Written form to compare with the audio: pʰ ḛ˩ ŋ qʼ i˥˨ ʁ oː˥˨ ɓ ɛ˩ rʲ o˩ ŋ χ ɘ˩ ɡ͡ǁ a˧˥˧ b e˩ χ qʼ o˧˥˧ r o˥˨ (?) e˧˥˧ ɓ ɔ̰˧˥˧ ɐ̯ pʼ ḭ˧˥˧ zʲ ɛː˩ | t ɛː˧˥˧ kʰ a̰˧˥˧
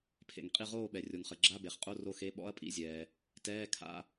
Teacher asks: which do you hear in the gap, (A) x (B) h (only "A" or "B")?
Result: A